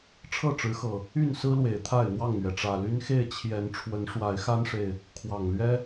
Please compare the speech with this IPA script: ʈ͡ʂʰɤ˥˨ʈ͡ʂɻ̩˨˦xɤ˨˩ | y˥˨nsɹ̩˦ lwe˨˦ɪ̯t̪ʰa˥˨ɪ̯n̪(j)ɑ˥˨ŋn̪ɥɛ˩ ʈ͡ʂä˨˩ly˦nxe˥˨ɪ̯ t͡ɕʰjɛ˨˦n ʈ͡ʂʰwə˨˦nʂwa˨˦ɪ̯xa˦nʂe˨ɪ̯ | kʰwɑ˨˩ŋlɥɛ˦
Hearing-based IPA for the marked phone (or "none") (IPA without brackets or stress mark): w